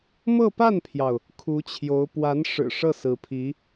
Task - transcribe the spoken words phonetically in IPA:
m ɤ˥˧ p a˥˩ n pʰ j ɑ˩ ʊ̯ | kʰ u˧˥ t͡ɕʰ j o˧˥ ʊ̯ p w a˧˥ n ʂ ɻ̩˨˩ ʂ ɤ˥˩ s ɹ̩˧˥ pʰ i˧˥

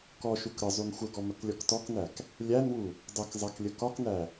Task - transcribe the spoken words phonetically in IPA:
k ɔ ʃ u k ɾ ə zˤ u n xʷ ə ɡ ɔ m ə k lʲ ɔ k t ɔ k n æ k | lʲ æ n w u | dˤ ə k zˤ æ k lʲ ə k ɒ k n æ

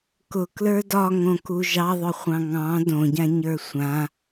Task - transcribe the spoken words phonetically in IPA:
k ʊ k l ə˞ d ɒ ŋ õ k u ʒ ɑ ðˤ ʊ χʷ ɑ̃ ŋ ɑ̃ d õ ɟ ã ɲ ə˞ sʷ ã

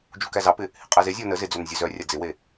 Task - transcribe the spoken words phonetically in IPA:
d͡ʒ u k æ z ɑ p ɪ | h ɪ qʼ ɛ z e zʲ ɔ n ə z ɪ d͡z œ n zʲ œ z œ rʲ a d͡z ɪ w e

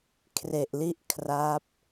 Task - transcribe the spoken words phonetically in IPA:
kʰ r e˨˩ ʔ l i˦˥ ʔ kʰ r a˦˥ p̚

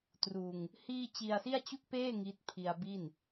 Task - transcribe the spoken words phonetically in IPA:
t r uː˧ ŋ | h iː˥˩ t͡ɕ i˧ a̯ s i˥˩ a̯ t͡ɕ u˥˩ k̚ p eː˥˩ ŋ i˦˥ t̚ pʰ i˧ a̯ b i˥˩ n

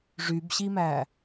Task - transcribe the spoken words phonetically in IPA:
ʐ y b ɕ i m æ

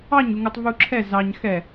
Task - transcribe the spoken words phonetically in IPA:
ɑ ɲ u ŋ u tˤ v u ǁʰ ɛ z ɑ ɲ x ɛ

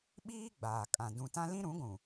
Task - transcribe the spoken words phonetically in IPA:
ɓ iː˦ ɡ͡b aː˨ kʼ ã˨ d ũ˨ t ã˦ l ĩ˦ ɾ ũ˨˦ ɡʷ ũ˨

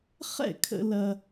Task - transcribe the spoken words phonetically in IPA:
χ ɛ̰˥˩ kʰ ə̰˧ l ɐ˧

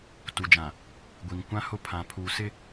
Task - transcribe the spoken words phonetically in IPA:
t u˨ d͡ʒ ã˨ | ɡʷ i˨ ŋ kʷ ã˦ h ʊ˦ pʰ ã˨ pʰ uː˨ s ɪ˦

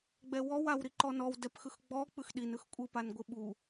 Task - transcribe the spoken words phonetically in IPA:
ɡ͡b ɛ w ɔ w a w ɾ i ǃ ɔ n ɔ w d ɛ p x ɯ x ɡ͡b ɔ k͡p ɯ x ɗ i n ɯ x kʷʼ ɯ p a n ɡʷ ɯ ɓ u

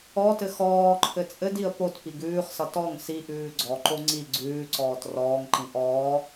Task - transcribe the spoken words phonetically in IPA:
ɔ t ɘ x ɔː ǃʰ ɘ t͡sʼ ɘ d i ə̯ p o t p i ɡ ʉː χ s ʌ t ɔ ŋ s i ʔ ʉː ɡ͡ǀ ɔ ǃ o ŋ͡ǀ i ɡ͡ǀ ʉː ǀ ɔː t r ɔː ŋ ǃ ĩ ʔ ɔː

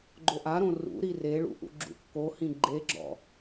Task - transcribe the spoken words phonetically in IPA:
ɡ͡ǃ o ʔ a ɾ õ r ṵ ɾ i r e ɭ ṵ ʔ ṵ ɡ͡ǁ ṵ kː o h ĩ ɡ͡ǃ e ɡ͡ǁ ɔ̰

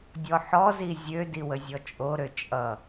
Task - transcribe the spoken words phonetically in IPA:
dʲ ɔ ħ ɔ z i zʲ ø d i w ə zʲ ɔ t͡ʃʼ o ɾ ø t͡ʃʼ ʌ

